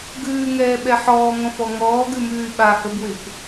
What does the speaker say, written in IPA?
ɡʉːŋɛːɓɛ ħɔːŋɔ̃fɔ ŋɔːɡʉmʉːy̯ ɓahəbwɪp

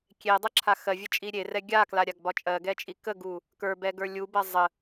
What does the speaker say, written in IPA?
kʲedˤəǁʰa xɜvʲət͡ʃʼi ɾʲerɛ ɡʲaklaɾʲaɡbɒ t͡ʃʼɜɡɛt͡ʃʼi kəɡu | kə˞bɛɡə˞ lʲubɜ zˤə

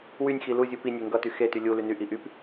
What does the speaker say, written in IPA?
wynʲxi luzʲu pinʲe ŋɡʌty xety lʲu lynyʔi ʔyp

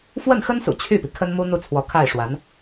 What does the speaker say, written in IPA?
fwə˥˩nxə˥nsṵ˨˩ t͡ɕʰy˥˩pi˩ kʰə˥nmu˥ n̪u˥˩t͡sʰwɔ˧˥kʰa˥˩ɪ̯ ʂwa˧˥n

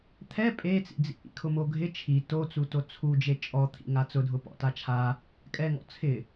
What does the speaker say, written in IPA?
t̪ʰɛ pʼet͡sḭd͡zḭ ʔḭkʰʊmoɡʱɪ t͡ʃʰi tot͡su tot͡sʰud͡ʒe t͡ʃʼɔt̪ʰḭ ŋat͡sʊdʱʊ pɔ̰tat͡ʃʰa | kʼɛŋɔ̰ t͡sʰɪ

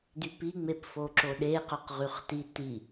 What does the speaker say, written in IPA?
dypiŋ͡mep foǁoɗe qœqʁyχti ti

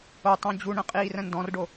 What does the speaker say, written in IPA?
otˤõ d͡ʑuɳə̃ qʼiːrə̃ndɔ̃rɖo

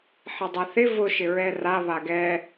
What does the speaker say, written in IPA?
ħedˤaθɪ vʊ ʃɪɹɛra βaɡɛ

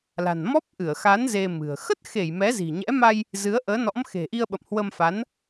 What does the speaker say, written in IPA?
la̤˨˩nmɔ˦˥p̚ʔɨ˧˩ə̯xa˨˦n ze˧mɨ̤˨˩ə̯ xə˦˥t̚xe˧˩j mɛ˨˦zi̤˨˩ɲɛ̰˧˥ma˧j | zɨ˨˦ə̯ʔəː˨˦nɔ̰˧˥m xe̤˨˩ʔi˧ə̯ɓə̰˧˨m hwə˧mfa˨˦n

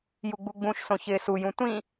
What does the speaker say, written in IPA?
juɡ͡buɡ͡bũʃsõ çɪːsujũ tʷĩ

